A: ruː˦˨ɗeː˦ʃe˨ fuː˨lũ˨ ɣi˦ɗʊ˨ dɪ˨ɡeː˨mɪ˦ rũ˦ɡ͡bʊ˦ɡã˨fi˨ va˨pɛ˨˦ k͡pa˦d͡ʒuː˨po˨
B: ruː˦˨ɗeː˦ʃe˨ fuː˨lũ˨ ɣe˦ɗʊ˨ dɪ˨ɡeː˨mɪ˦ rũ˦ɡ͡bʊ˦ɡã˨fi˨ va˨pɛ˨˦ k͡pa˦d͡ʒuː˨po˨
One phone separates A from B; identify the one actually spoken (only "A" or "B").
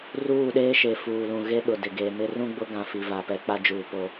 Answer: B